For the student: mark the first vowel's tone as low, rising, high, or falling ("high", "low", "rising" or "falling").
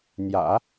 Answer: low